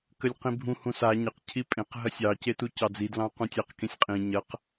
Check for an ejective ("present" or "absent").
present